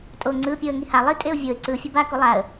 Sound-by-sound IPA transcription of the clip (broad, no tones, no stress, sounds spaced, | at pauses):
tʼ o ŋ͡ǀ ɯ pʲ o ə̯ ŋ i h a lˠ i tʼ e ʊ̯ vʲ o ɪ̯ ǀ ɯ fʲ o b a k u lˠ a ə̯